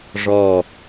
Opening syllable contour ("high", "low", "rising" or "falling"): low